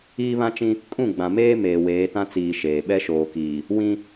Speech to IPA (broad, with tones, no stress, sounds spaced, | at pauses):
iː˦ β ã˦ t͡ʃ ĩ˦ | kʼ ũ˦˨ ɡ͡b ã˨ m eː˦ m eː˨ w eː˨˦ t ã˦ t͡s iː˨ ʃ eː˨ ɓ ɛ˦ ʃ oː˨ k iː˨ | w ĩ˦